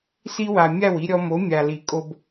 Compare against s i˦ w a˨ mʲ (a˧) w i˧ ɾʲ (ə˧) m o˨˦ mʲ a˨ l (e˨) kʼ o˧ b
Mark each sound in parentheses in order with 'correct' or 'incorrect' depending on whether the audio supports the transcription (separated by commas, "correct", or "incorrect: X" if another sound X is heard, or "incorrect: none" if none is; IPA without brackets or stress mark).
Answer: incorrect: a˦˨, incorrect: ɔ˧, incorrect: i˨